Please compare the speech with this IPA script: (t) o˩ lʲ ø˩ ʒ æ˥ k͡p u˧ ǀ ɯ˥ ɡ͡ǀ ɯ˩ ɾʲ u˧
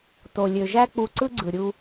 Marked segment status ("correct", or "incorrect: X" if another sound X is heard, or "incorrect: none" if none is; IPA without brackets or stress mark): correct